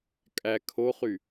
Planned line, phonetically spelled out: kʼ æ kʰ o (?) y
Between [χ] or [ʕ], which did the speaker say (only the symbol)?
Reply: χ